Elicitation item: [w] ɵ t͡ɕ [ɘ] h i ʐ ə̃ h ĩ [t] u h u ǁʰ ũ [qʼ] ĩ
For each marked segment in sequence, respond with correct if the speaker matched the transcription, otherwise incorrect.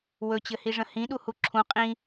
correct, correct, incorrect: ɗ, correct

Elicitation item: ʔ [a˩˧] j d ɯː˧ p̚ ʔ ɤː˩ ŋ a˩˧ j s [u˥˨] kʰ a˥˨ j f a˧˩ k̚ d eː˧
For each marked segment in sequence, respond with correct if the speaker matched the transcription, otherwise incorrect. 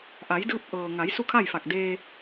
correct, correct

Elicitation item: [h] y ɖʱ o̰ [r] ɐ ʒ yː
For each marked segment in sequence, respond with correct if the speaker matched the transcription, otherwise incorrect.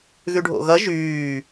incorrect: ɣ, incorrect: ɣ

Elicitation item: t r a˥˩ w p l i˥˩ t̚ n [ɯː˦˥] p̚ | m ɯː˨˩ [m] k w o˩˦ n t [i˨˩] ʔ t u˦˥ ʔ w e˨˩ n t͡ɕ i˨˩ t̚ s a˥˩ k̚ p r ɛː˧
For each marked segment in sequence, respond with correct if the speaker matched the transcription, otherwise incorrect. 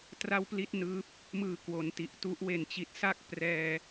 correct, incorrect: none, correct

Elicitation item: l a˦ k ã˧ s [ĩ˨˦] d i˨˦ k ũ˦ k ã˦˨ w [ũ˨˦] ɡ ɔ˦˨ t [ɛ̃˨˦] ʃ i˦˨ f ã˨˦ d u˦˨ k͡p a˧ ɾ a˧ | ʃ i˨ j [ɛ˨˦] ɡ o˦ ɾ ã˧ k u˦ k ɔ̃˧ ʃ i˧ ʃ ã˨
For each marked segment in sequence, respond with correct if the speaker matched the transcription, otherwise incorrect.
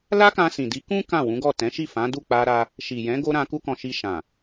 incorrect: ĩ˨, correct, correct, incorrect: ɛ̃˨˦

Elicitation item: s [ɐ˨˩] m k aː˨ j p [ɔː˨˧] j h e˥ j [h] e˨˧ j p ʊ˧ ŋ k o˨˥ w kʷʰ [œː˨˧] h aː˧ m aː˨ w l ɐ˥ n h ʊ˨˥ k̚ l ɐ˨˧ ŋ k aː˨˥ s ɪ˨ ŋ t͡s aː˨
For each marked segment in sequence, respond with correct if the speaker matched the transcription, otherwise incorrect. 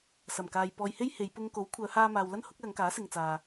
correct, incorrect: ɔː˨, correct, correct

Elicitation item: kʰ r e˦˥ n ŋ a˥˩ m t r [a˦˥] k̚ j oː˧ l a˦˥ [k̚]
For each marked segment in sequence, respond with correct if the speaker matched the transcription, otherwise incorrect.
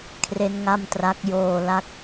correct, correct

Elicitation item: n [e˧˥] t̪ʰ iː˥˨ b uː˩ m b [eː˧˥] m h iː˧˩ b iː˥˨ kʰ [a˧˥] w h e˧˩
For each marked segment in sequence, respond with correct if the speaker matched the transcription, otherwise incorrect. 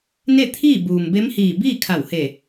incorrect: e˥˨, incorrect: e˧˥, incorrect: a˧˩

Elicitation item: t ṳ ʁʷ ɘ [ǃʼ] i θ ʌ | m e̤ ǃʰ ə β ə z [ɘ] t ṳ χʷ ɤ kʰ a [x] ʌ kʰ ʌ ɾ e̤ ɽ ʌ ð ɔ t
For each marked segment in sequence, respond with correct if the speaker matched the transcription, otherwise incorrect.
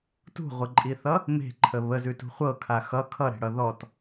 correct, incorrect: ʉ, correct

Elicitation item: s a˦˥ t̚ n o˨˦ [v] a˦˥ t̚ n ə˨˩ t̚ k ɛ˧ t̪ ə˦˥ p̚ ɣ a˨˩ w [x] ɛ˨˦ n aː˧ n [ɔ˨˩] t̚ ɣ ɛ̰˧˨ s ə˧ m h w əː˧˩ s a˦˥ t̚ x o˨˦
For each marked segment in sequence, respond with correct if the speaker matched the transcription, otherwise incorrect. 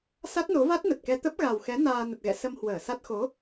correct, correct, incorrect: ə˨˩

